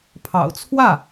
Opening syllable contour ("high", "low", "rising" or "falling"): low